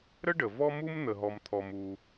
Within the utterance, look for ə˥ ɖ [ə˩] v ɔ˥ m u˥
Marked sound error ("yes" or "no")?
no